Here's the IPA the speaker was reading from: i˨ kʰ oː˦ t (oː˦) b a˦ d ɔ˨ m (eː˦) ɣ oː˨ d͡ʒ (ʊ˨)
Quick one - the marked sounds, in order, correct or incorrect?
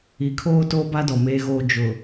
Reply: correct, incorrect: eː˨, correct

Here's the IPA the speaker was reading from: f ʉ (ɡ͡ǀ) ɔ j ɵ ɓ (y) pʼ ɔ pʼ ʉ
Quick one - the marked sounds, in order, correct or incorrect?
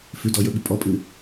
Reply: incorrect: d, correct

